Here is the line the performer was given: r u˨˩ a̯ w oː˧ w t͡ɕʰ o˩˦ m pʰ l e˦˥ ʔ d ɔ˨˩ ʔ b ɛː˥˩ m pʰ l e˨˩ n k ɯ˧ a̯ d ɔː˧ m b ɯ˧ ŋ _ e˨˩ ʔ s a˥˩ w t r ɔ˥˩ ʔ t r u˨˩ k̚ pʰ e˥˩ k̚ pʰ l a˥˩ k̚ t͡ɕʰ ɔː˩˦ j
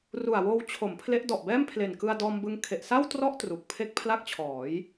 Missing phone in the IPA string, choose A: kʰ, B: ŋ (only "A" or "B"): A